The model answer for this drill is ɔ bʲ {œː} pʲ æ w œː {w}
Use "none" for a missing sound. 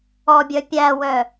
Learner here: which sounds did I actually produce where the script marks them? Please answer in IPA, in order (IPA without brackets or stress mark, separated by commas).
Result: œ, none